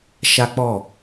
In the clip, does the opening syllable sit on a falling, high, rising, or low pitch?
high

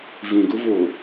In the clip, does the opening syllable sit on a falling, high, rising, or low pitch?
low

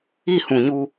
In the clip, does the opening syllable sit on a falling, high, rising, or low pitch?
falling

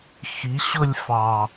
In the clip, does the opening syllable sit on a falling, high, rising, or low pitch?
rising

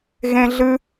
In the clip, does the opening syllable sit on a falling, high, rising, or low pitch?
high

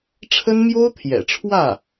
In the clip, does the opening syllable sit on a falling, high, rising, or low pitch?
high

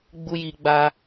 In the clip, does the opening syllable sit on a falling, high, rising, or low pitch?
high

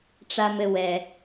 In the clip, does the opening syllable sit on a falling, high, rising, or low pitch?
low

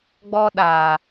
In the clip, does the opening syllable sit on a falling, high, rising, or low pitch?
high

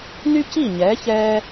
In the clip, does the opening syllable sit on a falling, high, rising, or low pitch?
high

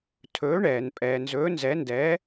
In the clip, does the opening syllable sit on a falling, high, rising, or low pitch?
rising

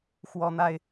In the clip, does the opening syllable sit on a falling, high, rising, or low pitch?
high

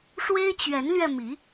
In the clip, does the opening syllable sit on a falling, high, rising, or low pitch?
high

